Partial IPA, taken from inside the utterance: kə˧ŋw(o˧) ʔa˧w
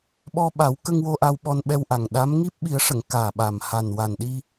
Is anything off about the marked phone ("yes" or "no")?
no